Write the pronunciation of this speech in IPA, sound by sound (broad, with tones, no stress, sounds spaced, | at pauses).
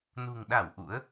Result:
n ṳ˨˩ ŋ ɗ a˧˩ w ʔ ṵ˧˥ ə̯